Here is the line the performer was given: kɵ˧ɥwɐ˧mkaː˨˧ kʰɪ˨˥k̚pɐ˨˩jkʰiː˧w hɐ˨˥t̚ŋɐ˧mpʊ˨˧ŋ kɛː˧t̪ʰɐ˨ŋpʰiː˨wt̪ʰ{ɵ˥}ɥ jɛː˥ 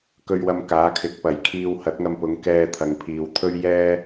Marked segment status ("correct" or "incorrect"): correct